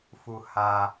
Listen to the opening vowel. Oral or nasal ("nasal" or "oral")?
oral